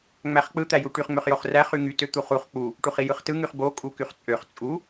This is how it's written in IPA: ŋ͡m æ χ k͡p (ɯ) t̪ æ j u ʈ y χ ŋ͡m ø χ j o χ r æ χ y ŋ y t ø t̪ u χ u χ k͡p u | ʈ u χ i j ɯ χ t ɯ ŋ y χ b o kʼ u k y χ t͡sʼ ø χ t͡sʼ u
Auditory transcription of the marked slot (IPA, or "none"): ɯ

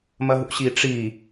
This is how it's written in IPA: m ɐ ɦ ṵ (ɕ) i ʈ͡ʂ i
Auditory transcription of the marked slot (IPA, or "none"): ɕ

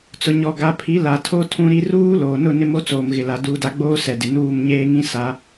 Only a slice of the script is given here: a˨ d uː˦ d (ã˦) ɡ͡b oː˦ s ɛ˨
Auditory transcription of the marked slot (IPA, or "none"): a˦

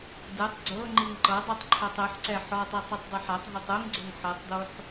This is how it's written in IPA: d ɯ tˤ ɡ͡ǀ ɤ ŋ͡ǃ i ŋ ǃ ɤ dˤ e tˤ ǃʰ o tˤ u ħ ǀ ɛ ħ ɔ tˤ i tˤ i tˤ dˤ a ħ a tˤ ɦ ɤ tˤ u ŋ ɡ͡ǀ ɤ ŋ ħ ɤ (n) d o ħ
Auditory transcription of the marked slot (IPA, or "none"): tˤ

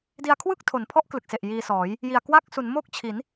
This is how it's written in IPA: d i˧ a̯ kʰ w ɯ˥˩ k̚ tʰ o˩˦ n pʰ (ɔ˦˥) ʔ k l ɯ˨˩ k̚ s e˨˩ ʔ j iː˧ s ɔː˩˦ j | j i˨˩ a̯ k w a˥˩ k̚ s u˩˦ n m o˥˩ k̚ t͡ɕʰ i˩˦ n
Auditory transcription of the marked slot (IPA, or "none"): ɔ˦˥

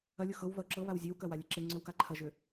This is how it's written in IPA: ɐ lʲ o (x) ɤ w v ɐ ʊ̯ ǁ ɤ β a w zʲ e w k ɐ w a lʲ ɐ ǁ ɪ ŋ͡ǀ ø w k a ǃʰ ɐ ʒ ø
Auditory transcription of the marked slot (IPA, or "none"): x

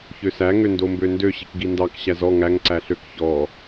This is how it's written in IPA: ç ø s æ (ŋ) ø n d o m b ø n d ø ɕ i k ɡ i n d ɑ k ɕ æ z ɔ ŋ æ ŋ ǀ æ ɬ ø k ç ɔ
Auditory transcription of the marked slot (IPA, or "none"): ŋ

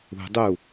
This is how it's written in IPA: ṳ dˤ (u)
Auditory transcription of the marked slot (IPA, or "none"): u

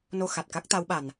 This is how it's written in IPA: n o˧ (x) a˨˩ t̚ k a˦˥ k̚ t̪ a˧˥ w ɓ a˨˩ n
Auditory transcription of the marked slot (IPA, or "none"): x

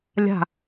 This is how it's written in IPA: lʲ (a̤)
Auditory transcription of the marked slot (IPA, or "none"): a̤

